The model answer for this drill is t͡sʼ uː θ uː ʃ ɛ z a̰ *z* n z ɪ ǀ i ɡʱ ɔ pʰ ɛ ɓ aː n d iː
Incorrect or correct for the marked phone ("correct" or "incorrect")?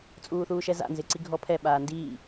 incorrect